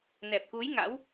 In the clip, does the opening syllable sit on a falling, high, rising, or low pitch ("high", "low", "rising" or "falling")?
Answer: low